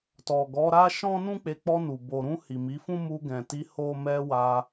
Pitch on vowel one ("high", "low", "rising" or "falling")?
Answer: low